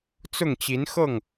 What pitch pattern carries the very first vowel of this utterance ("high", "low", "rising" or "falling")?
falling